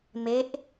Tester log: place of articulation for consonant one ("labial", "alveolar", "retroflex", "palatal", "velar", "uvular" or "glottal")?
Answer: labial